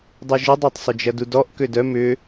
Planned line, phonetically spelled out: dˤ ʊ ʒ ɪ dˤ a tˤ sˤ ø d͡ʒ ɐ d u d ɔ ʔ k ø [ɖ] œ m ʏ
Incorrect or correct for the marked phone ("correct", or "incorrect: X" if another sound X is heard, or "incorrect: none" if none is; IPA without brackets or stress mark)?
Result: incorrect: d